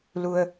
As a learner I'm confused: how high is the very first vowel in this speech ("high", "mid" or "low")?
high